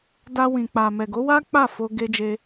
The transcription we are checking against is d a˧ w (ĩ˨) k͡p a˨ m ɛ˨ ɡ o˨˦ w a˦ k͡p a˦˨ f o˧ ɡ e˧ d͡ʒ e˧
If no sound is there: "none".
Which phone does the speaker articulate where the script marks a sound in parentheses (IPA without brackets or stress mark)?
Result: ĩ˨